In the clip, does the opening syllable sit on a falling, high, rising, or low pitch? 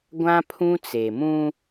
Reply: high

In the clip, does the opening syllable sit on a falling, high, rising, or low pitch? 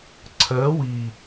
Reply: rising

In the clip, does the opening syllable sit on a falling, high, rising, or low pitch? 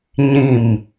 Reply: falling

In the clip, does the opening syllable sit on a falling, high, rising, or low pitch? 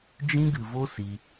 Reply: high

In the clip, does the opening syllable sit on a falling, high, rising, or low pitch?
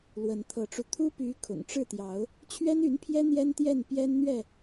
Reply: rising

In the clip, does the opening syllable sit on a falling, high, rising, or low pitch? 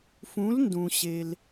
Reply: rising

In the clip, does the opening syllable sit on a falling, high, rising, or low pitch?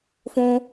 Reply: high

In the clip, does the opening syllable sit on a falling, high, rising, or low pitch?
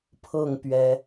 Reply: falling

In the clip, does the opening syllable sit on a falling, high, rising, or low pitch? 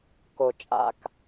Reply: low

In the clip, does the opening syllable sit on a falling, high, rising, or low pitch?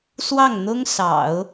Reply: falling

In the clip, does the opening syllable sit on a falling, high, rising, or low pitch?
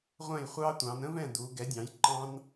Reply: falling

